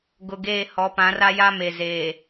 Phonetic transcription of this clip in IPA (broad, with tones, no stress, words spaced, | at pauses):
ɡʊ˨ɡeː˦˨ hɔ˨˦pã˨˦ra˦ja˦ me˨zeː˨